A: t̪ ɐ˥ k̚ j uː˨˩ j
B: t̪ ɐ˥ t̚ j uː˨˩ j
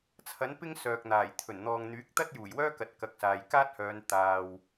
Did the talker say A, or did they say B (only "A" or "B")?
B